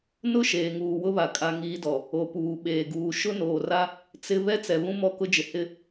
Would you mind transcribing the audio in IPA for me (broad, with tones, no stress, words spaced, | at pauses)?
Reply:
nʊ˦ ʃeː˨ŋuː˨wʊ˦βa˨ kʼa˦ŋiː˦dɔ˨ | o˨puː˨ɓeː˨ɡuː˨ ʃʊ˦noː˨ra˦ | t͡sɪ˦ βɛ˦t͡sɛ˨ βũ˦mɔ˦˨kʊ˦d͡ʒɪ˨ hɪ˦